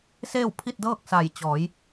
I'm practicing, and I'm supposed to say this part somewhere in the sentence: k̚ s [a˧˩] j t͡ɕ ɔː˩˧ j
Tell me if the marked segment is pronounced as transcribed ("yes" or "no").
yes